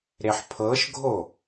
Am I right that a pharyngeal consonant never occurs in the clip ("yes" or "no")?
no